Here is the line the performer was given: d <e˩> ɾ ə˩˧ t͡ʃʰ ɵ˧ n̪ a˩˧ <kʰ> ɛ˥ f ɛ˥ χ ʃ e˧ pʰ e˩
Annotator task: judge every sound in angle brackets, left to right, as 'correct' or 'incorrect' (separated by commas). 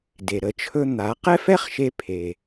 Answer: correct, incorrect